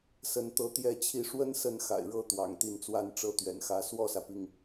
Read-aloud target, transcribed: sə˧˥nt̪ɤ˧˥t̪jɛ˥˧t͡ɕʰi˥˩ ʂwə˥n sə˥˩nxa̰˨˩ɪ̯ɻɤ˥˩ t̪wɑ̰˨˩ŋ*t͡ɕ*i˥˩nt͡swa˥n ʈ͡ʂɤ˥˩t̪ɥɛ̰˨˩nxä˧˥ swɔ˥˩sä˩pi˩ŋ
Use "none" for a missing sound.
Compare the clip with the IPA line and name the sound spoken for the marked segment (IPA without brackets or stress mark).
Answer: t̪